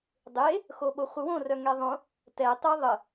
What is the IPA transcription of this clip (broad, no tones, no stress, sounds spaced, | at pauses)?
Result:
dˤ e | x o ɓ o χʷ ə w õ r œ ŋ ɛ ðˤ õ | t ɛ tˤ e ðˤ ə